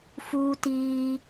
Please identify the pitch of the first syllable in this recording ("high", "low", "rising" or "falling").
high